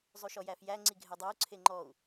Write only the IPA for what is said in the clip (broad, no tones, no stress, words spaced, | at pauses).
zˤyʃɔjæfjæ ŋ͡ǀiɡʱɛdˤæu̯ ǀʰeŋ͡ǃɔu̯